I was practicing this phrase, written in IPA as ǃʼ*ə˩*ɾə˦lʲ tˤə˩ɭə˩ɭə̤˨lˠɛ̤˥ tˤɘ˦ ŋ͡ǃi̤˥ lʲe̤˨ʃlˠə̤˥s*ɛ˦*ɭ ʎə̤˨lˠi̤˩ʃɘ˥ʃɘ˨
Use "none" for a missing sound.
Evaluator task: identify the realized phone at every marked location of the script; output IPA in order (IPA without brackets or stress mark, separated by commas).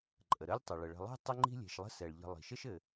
ə˩, ɛ˩